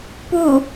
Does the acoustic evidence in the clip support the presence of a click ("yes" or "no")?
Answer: no